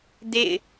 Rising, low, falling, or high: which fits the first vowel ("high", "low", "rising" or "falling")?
falling